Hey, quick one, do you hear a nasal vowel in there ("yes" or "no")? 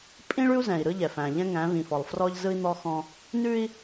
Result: yes